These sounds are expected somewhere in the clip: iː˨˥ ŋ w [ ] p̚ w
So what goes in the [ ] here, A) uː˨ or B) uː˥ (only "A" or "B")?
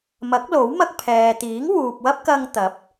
A